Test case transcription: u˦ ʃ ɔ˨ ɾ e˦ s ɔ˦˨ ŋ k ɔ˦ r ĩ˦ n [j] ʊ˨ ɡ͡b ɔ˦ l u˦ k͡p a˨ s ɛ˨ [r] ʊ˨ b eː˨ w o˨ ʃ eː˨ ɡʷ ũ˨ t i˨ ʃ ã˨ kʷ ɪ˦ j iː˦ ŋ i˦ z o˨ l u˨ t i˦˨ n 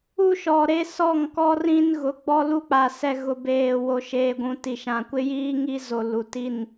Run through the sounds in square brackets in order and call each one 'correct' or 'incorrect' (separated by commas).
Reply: incorrect, incorrect